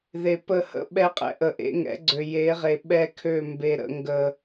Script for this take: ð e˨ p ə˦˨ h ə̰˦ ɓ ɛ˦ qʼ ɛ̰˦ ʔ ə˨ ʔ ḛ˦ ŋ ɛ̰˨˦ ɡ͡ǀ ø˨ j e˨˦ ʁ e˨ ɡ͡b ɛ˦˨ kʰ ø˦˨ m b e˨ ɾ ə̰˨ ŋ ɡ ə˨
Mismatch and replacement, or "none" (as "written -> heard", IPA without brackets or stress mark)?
ɡ͡b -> ɓ